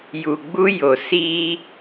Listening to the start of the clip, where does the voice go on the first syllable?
low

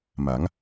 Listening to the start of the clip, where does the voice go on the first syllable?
rising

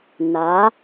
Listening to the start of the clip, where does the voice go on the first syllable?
rising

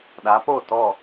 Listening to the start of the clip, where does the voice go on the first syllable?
rising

